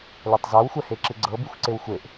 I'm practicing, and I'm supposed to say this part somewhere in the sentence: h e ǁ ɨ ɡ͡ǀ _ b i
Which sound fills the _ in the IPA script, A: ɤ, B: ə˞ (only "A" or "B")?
A